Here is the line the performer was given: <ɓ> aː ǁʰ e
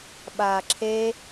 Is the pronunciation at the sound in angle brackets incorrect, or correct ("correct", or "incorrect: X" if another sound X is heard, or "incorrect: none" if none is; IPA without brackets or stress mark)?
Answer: correct